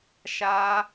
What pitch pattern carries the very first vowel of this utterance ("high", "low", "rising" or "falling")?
high